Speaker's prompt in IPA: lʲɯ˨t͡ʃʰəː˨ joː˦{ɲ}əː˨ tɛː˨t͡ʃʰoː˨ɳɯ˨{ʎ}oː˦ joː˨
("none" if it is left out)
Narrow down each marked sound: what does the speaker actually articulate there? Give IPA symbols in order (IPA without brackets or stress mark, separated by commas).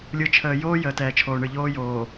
j, ʎ